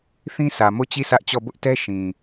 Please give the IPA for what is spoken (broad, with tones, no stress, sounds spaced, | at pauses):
θ ĩ˦ sʰ ä˨ m o˦˨ t͡ɕ i˦˨ s ä˦ ʔ t͡ɕ ɔ˦˨ b ʊ˦ ʔ t ɛ˦ ʃ ĩ˨